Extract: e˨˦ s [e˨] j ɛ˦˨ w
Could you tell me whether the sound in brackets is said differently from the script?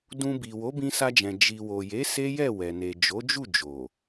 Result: yes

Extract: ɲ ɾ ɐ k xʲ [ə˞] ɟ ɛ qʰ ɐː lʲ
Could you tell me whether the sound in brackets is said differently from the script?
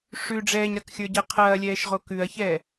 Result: no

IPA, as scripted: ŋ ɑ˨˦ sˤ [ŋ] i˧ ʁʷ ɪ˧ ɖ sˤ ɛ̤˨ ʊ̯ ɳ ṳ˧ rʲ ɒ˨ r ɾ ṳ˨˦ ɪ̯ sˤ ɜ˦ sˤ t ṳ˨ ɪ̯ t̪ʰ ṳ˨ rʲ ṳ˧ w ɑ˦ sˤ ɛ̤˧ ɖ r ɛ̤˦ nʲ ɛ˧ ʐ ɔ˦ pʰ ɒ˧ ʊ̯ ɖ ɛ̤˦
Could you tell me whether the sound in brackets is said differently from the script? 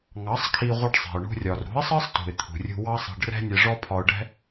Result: yes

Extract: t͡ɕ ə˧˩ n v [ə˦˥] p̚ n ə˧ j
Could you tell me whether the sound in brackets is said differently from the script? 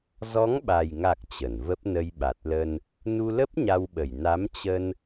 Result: no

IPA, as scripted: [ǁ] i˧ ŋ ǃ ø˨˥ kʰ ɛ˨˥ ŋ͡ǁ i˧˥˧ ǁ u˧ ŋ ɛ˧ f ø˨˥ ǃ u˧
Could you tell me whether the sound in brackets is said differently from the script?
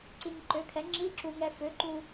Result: yes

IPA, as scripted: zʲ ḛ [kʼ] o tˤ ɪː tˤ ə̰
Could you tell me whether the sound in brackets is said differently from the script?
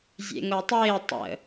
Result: yes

